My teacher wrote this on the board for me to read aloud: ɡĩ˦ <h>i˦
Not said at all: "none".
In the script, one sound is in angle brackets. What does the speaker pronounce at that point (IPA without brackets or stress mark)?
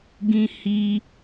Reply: h